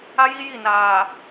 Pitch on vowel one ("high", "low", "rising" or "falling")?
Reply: high